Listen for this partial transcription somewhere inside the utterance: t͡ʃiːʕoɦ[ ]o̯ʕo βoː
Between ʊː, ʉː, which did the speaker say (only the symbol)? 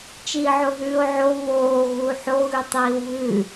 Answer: ʉː